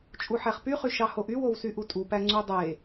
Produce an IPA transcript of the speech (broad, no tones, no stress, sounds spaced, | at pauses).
t͡ʃʼ u ħ æ χ p y χ y ʃ ɑ h o ʔ y w o w s y ʔ u tʼ u p æ ŋ͡ǀ u dˤ e